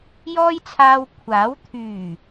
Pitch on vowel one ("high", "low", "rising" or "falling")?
high